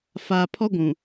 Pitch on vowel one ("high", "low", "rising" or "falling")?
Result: low